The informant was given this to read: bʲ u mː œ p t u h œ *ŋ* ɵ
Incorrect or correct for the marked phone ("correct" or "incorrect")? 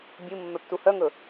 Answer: correct